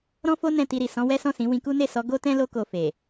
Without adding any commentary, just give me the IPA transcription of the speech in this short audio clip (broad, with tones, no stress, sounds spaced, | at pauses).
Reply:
ɾ ɔ̃˦ f o˦ n ɛ̃˦˨ t i˧ ɾ i˨ s ɔ̃˨˦ w ɛ˦ s ɔ̃˦˨ s ĩ˨˦ w ĩ˧ k u˦ n e˦˨ s ɔ˨˦ ɡ o˦ t ɛ̃˦ l o˦ k o˧ f e˨